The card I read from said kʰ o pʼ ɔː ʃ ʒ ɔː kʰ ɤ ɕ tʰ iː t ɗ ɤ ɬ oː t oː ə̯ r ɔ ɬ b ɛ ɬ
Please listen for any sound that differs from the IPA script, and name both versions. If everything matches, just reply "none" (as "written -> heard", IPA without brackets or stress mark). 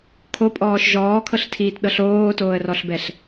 ɕ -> ɬ